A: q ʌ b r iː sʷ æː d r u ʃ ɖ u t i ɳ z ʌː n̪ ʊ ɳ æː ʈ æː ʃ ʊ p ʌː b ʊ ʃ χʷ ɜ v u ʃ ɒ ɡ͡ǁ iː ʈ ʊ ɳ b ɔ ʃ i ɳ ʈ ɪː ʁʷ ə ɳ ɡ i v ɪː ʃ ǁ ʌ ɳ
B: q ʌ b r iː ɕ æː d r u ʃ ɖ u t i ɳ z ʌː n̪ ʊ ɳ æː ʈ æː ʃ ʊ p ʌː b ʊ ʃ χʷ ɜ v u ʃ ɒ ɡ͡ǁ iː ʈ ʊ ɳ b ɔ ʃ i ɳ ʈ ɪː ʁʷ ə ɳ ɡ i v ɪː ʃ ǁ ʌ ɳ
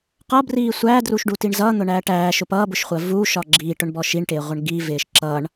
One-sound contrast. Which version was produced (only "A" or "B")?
A